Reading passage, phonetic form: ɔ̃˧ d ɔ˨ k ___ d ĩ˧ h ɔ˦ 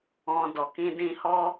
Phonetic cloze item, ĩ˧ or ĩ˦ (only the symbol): ĩ˧